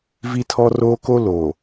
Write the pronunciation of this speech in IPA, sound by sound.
vi˦tʰɔ˦roː˦ko˦ lo˨

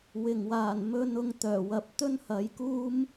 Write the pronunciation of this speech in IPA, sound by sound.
wɪ˨˩ŋwaː˨˩n mɵ˧n ʊ˧ŋ t̪œː˨˩wɐ˨˥p̚ t̪ɵ˥nhɐ˨˧jkuː˥m

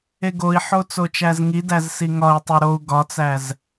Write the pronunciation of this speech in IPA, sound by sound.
eɡoi̯ħo t͡sot͡ʃæzŋidæz siŋɒi̯tˤe ɾou̯ ɡɒt͡sæz

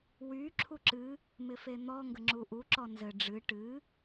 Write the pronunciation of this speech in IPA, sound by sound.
wy ǁʰuǁɨ | mɪfen̪ɔ ŋɡəŋ͡ǁuʔu ǁɔnzɘ ɖ͡ʐɨ ʈɨ

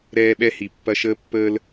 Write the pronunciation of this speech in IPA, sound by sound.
ɾɛː˦ ɓɛ˦hi˨ pːɐ˦ʃəː˦ pːəː˦l

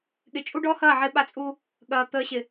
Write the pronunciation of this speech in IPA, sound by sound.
ɠɪ˨t͡ʃʼu˦ɖɔ˦hɐː˦˨ ʕɪ˦ɓa˦t͡sʼuː˦ | ɠɐː˨ t̪əː˨ɕɪ˨

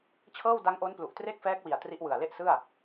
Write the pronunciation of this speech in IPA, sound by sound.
t͡ɕʰɤː˥˩wda˦˥ŋʔo˦˥nplu˨˩ʔ tre˥˩k̚fɛː˦˥k̚wi˨˩a̯ tri˦˥ʔwɯ˨˩a̯le˥˩ʔsɯ˥˩a̯

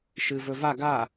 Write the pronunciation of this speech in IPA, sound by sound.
ʃɨvɵva ɡa

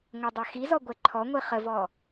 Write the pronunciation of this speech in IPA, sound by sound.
ŋʷədˤa xizɔ ɡʷɛǃʰɔŋʷi χəvɔ

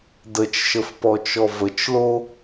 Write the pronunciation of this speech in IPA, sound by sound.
dət͡ʃʃəfpɔt͡ʃɔ vət͡ʃlo

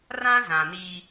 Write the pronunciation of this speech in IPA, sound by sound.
rã˦zã˨niː˦

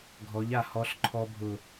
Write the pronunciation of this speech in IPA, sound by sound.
ɡʱɔ˨˦ʎa˨ hɔ˦ɬǃʰɔ˦ bʱʊ˨

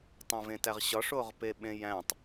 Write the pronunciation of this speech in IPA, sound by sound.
tˤũvẽtæʁɕɒʂ oʁpeɓẽjæ̃tˤ

